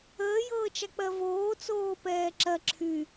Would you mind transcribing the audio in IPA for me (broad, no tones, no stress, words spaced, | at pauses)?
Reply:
əːjɤːt͡ʃa k͡pɜvoː t͡soːpɛːǁɜ ǁʰy